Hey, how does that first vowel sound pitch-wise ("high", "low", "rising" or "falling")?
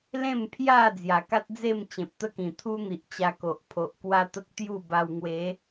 falling